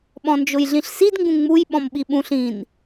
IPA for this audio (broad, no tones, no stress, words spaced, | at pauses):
ɓɔ̃nd͡ʒʊjɮĩɬsid ŋɡũŋ͡muj ɓɔ̃mɓiɓũɬ ĩn